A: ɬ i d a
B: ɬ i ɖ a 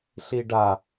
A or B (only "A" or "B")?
B